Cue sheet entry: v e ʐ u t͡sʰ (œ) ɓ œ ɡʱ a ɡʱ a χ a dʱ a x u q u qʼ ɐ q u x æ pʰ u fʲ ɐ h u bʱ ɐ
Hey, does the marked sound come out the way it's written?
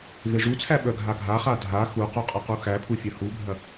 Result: no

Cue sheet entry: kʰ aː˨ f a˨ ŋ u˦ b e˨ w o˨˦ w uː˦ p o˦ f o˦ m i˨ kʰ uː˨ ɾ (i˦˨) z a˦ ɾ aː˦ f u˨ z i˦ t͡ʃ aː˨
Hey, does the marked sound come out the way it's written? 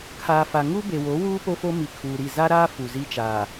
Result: yes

